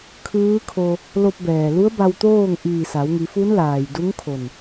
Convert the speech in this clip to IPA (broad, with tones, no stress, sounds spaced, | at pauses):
kʰ ɯː˧˥ kʰ o˧ | l o˧ p̚ b ɛː˩ l u˧˥ ə̯ b a˧ w t̪ oː˥˨ ŋ ʔ iː˧˩ s a˩˧ w ŋ i˩˧ f u˧˥ n l aː˩ j d u˧˥ ŋ kʰ o˧˩ n